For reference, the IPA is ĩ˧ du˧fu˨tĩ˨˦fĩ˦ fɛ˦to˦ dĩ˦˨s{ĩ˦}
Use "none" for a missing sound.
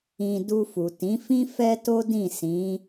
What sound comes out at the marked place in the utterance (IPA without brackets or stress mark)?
ĩ˨˦